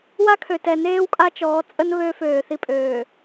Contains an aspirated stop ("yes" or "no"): yes